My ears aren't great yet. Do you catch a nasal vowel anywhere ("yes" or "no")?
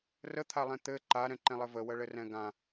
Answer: yes